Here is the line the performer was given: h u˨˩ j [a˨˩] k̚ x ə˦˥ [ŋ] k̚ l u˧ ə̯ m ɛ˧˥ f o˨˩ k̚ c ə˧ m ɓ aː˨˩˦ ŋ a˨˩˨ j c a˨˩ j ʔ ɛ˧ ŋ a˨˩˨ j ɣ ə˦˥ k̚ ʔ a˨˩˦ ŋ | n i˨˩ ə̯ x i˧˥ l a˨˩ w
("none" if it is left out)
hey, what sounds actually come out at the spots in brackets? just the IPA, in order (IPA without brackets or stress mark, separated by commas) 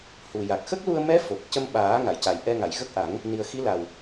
a˨˩, none